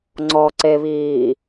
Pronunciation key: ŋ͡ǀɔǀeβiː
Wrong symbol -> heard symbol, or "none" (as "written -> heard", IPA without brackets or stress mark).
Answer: none